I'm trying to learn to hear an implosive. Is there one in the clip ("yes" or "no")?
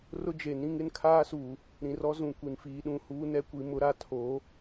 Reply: yes